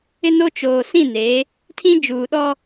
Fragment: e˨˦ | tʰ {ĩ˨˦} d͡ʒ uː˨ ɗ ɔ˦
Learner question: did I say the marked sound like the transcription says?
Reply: no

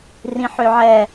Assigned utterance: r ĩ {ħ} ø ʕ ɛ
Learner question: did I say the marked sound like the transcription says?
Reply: yes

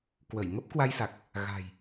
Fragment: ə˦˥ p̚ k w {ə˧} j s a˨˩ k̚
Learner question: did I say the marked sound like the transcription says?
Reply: no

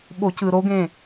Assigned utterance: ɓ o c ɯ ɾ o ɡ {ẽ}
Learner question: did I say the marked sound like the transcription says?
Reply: yes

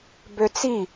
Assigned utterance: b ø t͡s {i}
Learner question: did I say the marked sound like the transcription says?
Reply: yes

